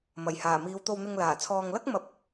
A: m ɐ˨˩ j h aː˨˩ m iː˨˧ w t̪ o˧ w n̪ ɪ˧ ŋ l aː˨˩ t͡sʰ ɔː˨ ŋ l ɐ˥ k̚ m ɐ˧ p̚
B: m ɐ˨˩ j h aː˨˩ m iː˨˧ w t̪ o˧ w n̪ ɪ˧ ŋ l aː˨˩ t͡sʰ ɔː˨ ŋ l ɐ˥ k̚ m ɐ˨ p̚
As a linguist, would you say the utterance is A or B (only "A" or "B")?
A